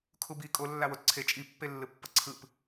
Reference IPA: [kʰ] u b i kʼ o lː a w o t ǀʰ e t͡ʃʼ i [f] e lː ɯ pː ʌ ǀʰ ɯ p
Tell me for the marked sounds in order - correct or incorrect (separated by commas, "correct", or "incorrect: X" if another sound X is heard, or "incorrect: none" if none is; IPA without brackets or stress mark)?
correct, incorrect: pː